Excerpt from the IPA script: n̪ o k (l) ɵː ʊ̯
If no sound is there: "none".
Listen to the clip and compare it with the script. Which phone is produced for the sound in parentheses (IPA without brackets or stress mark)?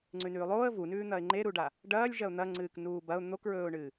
ɹ